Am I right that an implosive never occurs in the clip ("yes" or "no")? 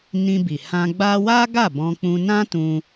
yes